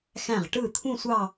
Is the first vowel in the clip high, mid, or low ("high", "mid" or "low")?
low